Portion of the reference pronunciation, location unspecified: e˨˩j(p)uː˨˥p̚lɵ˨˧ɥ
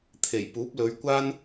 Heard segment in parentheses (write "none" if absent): p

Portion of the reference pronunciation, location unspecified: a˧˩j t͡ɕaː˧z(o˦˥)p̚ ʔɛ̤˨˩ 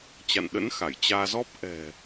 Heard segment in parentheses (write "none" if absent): ɔ˦˥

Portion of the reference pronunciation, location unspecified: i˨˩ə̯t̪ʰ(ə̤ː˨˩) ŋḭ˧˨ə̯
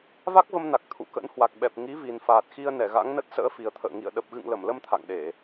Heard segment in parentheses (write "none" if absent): ə̰ː˧˨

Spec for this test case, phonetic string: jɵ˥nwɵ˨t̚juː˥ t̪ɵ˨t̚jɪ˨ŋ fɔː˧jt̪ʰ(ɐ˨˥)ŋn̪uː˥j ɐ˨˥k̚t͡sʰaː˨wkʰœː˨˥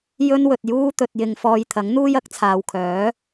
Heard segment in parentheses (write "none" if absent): ɐ˨˥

